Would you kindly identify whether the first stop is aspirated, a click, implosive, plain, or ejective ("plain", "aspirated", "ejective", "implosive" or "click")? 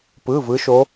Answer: plain